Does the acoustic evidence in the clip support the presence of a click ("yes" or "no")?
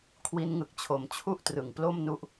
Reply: no